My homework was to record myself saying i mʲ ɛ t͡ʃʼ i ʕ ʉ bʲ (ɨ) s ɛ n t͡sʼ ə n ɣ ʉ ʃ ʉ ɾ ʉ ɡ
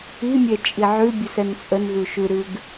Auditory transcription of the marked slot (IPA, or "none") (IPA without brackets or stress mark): ʉ